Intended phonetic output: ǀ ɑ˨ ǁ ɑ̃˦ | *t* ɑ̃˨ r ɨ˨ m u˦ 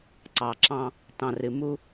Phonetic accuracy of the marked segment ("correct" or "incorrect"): correct